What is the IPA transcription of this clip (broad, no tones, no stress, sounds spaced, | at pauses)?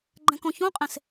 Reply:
ɡ͡ǃ ɛ̃ k õ ç õ qʼ ẽ s